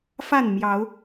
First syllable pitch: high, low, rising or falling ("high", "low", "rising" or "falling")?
falling